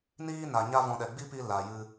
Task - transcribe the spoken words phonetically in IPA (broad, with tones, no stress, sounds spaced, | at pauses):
n iː˦ n a˨ ɲ a˦ v ɔ̃˧ ɗ ɛ˨ ɡ͡b i˦ p i˧ l a˨ j ɨ˧